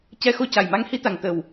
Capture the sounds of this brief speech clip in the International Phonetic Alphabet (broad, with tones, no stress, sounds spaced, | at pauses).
c ɛ˧ x o˧ c a˨˩ j m a˧˥ ŋ h i˧˥ t̪ a˨˩ ŋ t̪ ə˨˩ w